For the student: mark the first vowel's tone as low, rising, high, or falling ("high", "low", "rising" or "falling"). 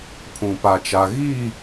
low